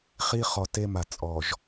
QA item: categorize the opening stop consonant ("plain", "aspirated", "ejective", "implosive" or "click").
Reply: plain